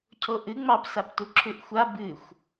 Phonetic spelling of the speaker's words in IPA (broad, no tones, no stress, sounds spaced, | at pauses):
cʰ o ʔ ɨ ŋ͡m ɑ p s a p t u ǁʰ ʉ ʔ xʷ a b ɨ xʷ